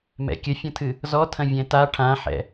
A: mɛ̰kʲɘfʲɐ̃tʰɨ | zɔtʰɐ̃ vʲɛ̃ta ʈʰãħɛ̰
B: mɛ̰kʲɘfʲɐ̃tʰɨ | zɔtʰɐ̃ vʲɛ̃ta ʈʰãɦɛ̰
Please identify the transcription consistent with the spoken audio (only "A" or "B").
A